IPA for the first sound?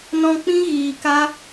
n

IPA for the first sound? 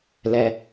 l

